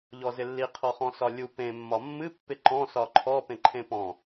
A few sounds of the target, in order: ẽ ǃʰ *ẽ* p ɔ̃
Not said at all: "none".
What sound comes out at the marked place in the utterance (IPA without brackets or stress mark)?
ẽ